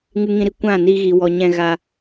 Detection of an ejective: absent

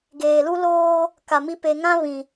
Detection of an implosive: absent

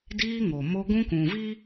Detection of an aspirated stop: absent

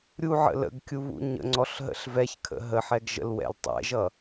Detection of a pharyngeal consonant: present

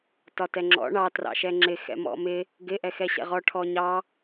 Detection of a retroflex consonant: present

